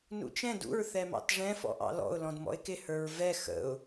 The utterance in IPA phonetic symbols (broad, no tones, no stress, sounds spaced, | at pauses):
n ṵ t͡ʃ ɛ̃ d ṵ ɹ θ ɛ m ɑ̰ t ʐ ɛ̃ f ɔ̰ ʔ ɑ̰ l ɔ̰ ʊ̯ l ɔ̃ d m ɔ̰ ɪ̯ k ɪ h ə˞ ɹ v ɛ x ə̰ ʊ̯